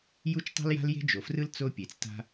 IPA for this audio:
j u˥ t͡ʃ tˤ e̤˥ l j a̤˥ l j e̤˥ d͡ʒ o˩ f r ɯ˥ l t͡s o˥ pʲ e˩ t͡s t a̤˥

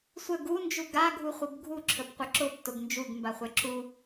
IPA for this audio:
sʷ ə ɡ u n d͡ʒ u ɡ a ɡʱ u χʷ ə b ɡʱ u ǁʰ ə p qʷ ə ǁ ʊ p t ʊ ɡ n d͡ʒ u ɡ m b a χʷ ɛ ǁ u

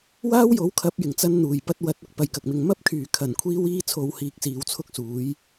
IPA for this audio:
w aː˥ w j o˨˥ w kʰ ɐ˨˥ p̚ j ɪ˨˩ ŋ t͡s ɐ˧ n n̪ uː˨˩ j p ɐ˨˥ t̚ w ɐ˨˥ t̚ ʊ˥ k̚ p ɐ˨ j k ɐ˨ k̚ m ɪ˨ ŋ m ɐ˥ p̚ kʰ yː˨˩ kʰ ɐ˨˩ n kʷʰ iː˧ w iː˧ t͡sʰ o˨ w h iː˨˥ k̚ s iː˨ w t͡sʰ ʊ˥ k̚ s uː˨˥ j

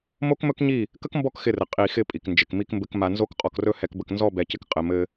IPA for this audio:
m o˦ k m ɵ˦ k ɲ i˦˨ | k ə˦ k m b ɔ˦˨ k x ɪ˦˨ r ɘ˨ qʼ i˨ x ɪ˦˨ pʼ i˨ k n d͡ʒ ɪ˨ k m i˦ k m b ɘ˦ k m a˨ n z o˦ k qʼ ɔ˨ k r ɵ˦ h ɛ˨ k b ə˨ k n z ɔ˦˨ b ɛ˨˦ c ɪ˦ k qʼ ɘ˨ m ɘ˦

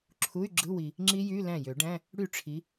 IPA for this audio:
ǁʰ u˧˥˧ y̯ ɡ͡ǁ ɯ˧˥˧ w i˨ | ŋ͡ǁ i˦˥ j y˧˥˧ l æ̃˥˩ j ø˨˩˦ ɖ æ̃˧˥˧ | ɽ y˥˩ ʈ͡ʂʰ i˨˦

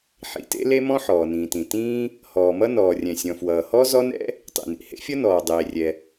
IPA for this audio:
ħ ḭ˩ t ḛ˥ l e˥ m ɔ̃˥ ħ ɔː˩ n ĩː˩ t ĩ˩ t ĩː˥ | h ɔː˩ m ʌ˥ n ɔː˩ rʲ ɛ̃˩ sʲ ɔ̃˩ f w ʌː˩ h ɔ˥ z ɔ˥ n ɛ̰˥ | tˤ ḭ˩ n ḭ˩ h ḛ˥ fʲ ʌ˥ n ɔː˩ dˤ eː˩ rʲ ɛ˩

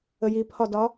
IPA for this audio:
ə j i pʰ ɒ d ɒ

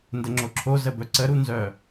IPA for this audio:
n d ə ŋ͡ǁ o ǁʰ o z ə b œ ǀ ə ɾ u n z œ

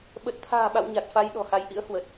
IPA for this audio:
ɓ ə˨˩ t̚ t̪ʰ a̤ː˨˩ ɓ a̰˧˨ w ɲ a˨˩ t̚ f a˧ j ɗ ɔ̤˨˩ h a˨˦ j ʔ ḭ˧˥ ə̯ h w ə˨˩ t̚

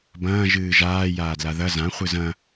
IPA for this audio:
b ɐ̃ː ʒ ɨː ʒ aː j aː d l a ð ɐ z ã χʷ ɨ z ɐ̃

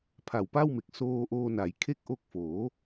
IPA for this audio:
pʰ a˨˩ w p a˥˩ w m e˨˩ k̚ s oː˧ ʔ oː˧ n a˩˦ j kʰ e˥˩ k̚ ʔ o˦˥ k̚ f oː˩˦

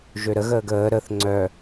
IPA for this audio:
ʒ ø ɾ ə ɣ əː ɡ əː ɾ ə θ ŋ͡ǀ œ

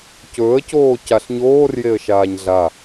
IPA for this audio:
c ɵː ə̯ c oː c a ɬ ɲ oː r j e ə̯ ʃ aː ɲ ɮ a

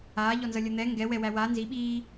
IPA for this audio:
aː ʎ ɔ n z ʌ lʲ ʌ n̪ ɛ ŋ ɡ ɛ w ɛ w æ w a n z i ɓ iː

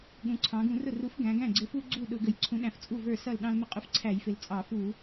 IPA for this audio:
ɠ ũ˩˧ ǀʰ ɑ̃˩˧ ɡ ũ˧˩˧ r ʊ˥˩ r u˨˥ f ɡ æ̃˩˧ ɡ æ̃˥˩ ɡ͡ǀ ɪ˨˥ f u˦ ɡ͡ǀ u˥˩ ɗ ʊ˧˩˧ ɡ ə˨˩ j ǀʰ ũ˨˥ ɗ æ̃˨˩ f t͡sʼ u˥˩ v ə˞˥˩ s ʌ˥˩ l ɗ ɑ̃˦ l m ɪ˦ qʼ ʊ˥˩ f ǀʰ æ˧˩˧ j f ɪ˩˧ l t͡sʼ ɑ˧˩˧ f u˧˩˧

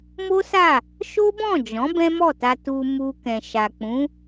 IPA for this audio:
m o˦ s a˦˨ | ʃ o˦ b ɔ̃˦˨ d͡ʒ ɔ̃˨˦ b ɛ̃˦ m ɔ˦˨ t a˧ t u˧ m u˧ k ɛ̃˨ ʃ a˨ k͡p ũ˨˦

